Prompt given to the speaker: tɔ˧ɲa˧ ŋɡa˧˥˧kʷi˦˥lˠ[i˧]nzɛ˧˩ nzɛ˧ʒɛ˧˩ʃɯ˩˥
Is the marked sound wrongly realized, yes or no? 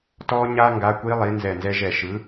yes